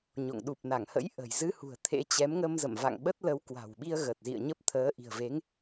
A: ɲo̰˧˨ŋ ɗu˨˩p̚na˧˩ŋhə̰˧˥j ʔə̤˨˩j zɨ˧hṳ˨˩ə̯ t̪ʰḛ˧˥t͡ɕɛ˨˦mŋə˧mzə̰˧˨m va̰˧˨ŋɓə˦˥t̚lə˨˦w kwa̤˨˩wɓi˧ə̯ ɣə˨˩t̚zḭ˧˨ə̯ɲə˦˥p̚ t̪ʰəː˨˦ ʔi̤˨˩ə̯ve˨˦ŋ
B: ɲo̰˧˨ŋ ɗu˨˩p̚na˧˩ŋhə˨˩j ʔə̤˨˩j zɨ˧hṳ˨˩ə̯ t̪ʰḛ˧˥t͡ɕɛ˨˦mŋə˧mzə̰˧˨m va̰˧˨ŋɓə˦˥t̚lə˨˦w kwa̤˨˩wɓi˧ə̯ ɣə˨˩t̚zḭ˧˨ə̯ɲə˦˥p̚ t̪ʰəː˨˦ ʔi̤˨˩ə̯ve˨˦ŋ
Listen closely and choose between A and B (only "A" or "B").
A